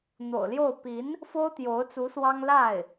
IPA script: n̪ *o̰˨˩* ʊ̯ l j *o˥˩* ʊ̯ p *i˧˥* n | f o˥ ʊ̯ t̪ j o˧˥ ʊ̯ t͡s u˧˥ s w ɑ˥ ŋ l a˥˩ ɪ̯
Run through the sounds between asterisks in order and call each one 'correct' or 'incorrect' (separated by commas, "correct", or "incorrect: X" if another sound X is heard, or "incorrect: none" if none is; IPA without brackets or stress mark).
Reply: correct, correct, correct